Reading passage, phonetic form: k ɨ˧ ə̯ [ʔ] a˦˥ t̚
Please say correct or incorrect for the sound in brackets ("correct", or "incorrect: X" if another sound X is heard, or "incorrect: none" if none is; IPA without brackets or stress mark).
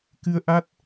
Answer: correct